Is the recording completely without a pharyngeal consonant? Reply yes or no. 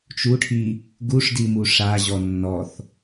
yes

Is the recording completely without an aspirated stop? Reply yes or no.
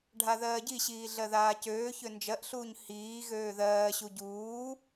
yes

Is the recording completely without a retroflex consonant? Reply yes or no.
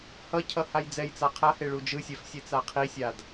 no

